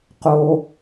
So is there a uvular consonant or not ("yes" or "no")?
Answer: yes